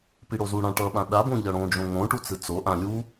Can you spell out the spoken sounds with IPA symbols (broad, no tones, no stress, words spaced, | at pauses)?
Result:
piɽozuɽã ʈʌɓã ɗabõ ʎʌɽõd͡ʒõ ŋõʈu t͡sɯt͡soʔã lʲu